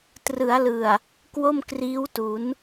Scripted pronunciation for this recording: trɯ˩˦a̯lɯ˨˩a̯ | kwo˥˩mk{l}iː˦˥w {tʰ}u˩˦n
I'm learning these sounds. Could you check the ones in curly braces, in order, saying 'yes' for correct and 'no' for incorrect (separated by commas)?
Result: no, no